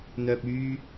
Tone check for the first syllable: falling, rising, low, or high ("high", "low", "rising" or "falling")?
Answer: low